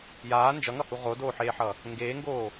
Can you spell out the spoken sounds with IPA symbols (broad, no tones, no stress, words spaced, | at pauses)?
jaː nd͡ʒʌŋʌhu ʁodoːħeːħʌ | ŋɡeːŋɡoː